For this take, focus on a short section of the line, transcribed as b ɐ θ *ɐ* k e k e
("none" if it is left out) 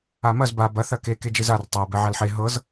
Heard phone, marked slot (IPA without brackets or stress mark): ɐ